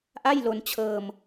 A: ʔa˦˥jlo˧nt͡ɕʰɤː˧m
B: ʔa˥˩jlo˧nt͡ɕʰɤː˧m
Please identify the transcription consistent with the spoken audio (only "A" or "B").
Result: B